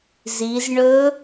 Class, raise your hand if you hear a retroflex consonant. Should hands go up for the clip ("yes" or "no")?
yes